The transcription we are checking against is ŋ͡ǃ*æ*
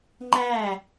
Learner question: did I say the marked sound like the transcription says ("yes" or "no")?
yes